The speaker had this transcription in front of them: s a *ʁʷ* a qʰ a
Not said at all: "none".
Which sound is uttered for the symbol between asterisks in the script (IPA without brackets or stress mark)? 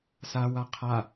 w